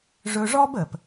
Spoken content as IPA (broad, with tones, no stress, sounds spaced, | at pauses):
ʐ ɵ˧ ʐ ɔ˥ b ə˩ p